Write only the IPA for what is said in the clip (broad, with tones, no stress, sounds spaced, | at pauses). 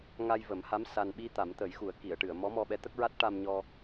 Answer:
ŋ a˧ j v ə˨˩˦ m h a˧˥ m s a˧ n ɓ i˧ t̪ a˨˩˦ m t̪ ə˨˩˦ j x u˨˩˦ ə̯ k i˨˩˨ ə̯ ʈ ɨ˨˩˨ ə̯ m ɔ˧˥ m ɔ˧ ɓ ɛ˧˥ t̪ ə˦˥ k̚ ɹ a˦˥ t̚ ʈ a˧ m ɲ ɔ˧